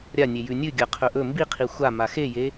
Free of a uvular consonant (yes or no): no